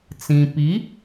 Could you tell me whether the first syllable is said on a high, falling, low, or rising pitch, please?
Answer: low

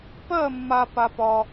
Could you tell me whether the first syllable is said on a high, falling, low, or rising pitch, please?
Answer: falling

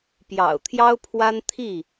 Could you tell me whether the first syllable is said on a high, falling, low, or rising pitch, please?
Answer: low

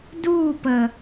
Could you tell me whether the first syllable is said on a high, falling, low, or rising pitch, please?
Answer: falling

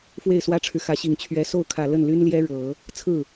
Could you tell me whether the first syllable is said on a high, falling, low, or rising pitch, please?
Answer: falling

